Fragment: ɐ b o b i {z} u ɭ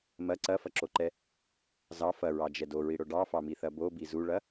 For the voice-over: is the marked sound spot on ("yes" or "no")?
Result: yes